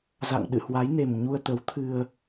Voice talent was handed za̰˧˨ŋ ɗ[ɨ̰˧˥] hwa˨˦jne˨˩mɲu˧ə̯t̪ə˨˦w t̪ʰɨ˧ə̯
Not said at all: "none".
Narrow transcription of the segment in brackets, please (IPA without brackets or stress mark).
ɨ̰˧˨